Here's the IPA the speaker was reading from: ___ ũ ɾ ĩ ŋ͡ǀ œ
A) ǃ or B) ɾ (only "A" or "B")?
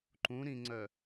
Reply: A